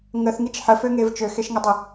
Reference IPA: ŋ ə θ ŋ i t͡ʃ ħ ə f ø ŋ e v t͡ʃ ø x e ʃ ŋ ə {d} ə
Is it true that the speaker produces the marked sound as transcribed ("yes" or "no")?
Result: no